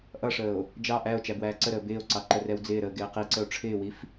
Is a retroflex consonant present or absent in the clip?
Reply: present